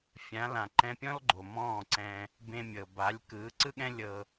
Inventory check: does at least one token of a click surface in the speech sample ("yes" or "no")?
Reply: yes